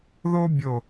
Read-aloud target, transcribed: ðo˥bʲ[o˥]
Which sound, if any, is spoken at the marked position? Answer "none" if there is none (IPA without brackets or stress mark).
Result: o˧˩